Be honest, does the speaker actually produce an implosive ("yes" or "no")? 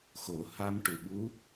yes